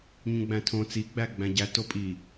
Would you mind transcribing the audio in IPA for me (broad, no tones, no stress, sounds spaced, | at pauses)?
ɲ ũ ɡ͡b æ̃ tʰ õ t͡s i ɡ͡b æ ɡ͡b æ̃ ɟ æ t o pʼ i